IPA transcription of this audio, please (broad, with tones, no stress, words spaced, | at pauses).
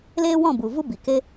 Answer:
leː˦wɔ̃˦˨bu˨ vu˦bi˨ ke˦